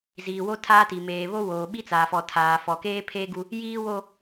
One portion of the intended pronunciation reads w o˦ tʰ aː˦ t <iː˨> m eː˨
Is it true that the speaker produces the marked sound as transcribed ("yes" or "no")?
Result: no